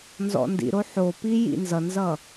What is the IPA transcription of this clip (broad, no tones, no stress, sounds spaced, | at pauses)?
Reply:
n z ɔ̰ n d ḭ ɾ o ħ o p i j ḭ n z ʌ n z ʌ